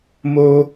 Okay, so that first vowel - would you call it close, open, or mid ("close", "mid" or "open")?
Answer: mid